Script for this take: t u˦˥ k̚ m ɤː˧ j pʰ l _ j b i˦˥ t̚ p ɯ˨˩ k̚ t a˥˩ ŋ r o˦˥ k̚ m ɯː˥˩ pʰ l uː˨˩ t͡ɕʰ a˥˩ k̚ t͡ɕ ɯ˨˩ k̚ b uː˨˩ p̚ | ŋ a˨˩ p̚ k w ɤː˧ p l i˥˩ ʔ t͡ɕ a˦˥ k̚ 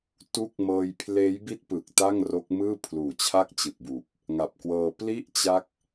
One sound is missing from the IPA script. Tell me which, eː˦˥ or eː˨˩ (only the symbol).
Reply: eː˦˥